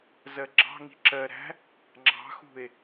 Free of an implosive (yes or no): yes